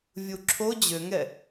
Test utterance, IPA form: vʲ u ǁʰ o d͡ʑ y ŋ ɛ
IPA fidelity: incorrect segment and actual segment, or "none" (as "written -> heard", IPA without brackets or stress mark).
y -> ø